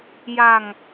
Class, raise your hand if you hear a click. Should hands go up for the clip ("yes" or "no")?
no